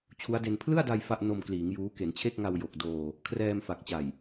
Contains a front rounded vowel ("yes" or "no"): no